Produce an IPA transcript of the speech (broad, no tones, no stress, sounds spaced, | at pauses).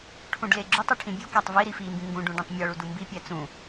ʈʰ ũ ɖ l e ɡ͡ǁ u tˤ u ʈʰ ĩ bʲ u k æ tˤ v i ɾ i f i m b ĩ ŋ ɡ ũ ɖ ũ ɖ ẽ tˤ mʲ ɒ ɭ u d u m b i pʲ æ t͡s ũ